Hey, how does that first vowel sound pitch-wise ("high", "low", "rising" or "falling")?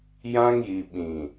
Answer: high